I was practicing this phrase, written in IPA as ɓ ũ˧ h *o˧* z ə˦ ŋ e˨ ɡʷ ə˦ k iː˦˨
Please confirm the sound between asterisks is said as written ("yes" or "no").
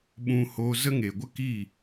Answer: yes